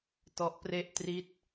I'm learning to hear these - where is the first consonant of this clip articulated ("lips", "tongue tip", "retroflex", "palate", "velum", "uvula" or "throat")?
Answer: tongue tip